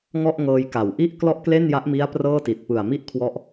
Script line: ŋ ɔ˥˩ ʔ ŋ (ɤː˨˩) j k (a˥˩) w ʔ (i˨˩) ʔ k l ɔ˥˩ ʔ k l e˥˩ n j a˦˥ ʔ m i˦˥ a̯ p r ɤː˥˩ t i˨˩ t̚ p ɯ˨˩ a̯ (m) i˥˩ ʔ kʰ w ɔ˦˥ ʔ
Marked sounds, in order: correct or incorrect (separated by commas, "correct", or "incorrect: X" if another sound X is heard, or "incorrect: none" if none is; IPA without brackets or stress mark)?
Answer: incorrect: ɤː˧, incorrect: a˩˦, incorrect: i˥˩, correct